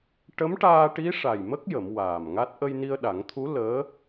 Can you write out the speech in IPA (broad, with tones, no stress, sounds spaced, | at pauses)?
ʈ ə˧˥ m ʈ aː˧ ʈ i˧˥ ʂ a˨˩ j m ə˦˥ k̚ j ə˨˩˦ m w aː˨˩ m ŋ a˦˥ t̚ ʔ ə˧ j n i˧ ə̯ ɗ a˨˩˦ ŋ t̪ʰ u˧˥ l əː˧˥